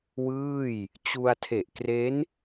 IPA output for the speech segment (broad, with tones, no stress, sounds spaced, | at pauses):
w ɯː˥˩ j | t͡ɕ u˧ a̯ tʰ e˨˩ ʔ k r e˦˥ n